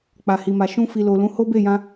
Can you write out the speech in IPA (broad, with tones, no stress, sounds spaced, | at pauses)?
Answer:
k͡p a˨ h i˨ m a˨ ʃ ũ˧ f i˨ l o˨ l ũ˨˦ h o˦ b e˦˨ j ã˧